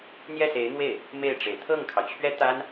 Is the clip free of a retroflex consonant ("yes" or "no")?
no